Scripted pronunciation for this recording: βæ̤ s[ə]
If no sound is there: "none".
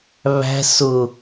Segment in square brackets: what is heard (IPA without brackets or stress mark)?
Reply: ʊ